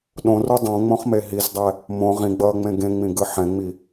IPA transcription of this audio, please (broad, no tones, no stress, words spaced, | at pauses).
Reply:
ɗõru dˤõŋ͡mõχme ɦizdˤɛ | mõ ʁĩɡ͡bʌːŋ͡mẽ ɡẽŋ͡mĩɡɯ ħɛ̃ŋ͡mi